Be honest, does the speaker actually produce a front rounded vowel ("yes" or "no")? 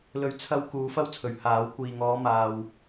no